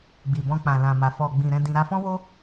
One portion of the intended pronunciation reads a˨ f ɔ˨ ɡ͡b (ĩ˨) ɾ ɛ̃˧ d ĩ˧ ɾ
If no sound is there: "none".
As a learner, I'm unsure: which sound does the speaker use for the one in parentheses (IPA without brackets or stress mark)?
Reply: ĩ˨